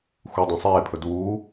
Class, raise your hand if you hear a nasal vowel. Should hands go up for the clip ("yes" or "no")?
yes